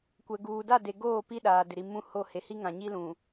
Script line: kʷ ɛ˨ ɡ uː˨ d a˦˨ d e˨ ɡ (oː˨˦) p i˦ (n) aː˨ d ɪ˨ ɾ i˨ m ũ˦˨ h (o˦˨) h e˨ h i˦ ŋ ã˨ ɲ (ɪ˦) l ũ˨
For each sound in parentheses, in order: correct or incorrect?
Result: incorrect, incorrect, correct, incorrect

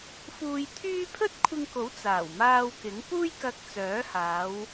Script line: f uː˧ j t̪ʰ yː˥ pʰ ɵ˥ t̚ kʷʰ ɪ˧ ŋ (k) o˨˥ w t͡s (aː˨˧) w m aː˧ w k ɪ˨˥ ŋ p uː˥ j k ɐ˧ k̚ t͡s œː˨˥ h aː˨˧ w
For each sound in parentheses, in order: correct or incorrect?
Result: correct, incorrect

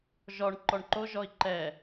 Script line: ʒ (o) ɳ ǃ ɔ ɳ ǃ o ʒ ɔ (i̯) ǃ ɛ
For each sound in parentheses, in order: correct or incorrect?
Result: incorrect, correct

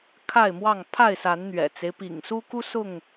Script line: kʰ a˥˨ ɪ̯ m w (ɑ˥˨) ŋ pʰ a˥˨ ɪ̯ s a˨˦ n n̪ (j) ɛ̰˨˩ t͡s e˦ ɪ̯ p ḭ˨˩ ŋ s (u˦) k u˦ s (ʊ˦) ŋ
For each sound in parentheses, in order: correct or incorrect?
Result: correct, incorrect, correct, incorrect

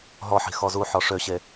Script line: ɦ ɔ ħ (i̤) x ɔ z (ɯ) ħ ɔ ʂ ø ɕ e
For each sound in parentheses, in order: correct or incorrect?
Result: correct, incorrect

